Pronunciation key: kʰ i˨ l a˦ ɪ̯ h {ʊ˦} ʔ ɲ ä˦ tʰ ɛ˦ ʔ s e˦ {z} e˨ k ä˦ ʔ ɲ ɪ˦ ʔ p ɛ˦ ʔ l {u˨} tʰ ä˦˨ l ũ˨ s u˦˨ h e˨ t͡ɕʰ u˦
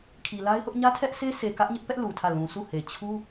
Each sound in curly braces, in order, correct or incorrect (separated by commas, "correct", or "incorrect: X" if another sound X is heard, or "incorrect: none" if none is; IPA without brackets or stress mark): correct, incorrect: s, correct